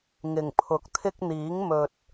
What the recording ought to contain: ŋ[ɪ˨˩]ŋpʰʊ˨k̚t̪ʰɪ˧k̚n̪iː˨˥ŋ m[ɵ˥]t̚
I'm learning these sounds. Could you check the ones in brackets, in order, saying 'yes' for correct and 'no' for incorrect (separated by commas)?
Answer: yes, no